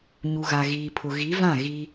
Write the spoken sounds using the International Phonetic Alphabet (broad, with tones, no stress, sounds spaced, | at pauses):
ɲ u˨ ɣ a˨ ɣ iː˨ pʰ ʊ˨ ɣ i˨˦ v ã˦˨ ɣ i˦